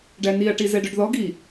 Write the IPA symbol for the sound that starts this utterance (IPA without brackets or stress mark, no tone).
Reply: ɖ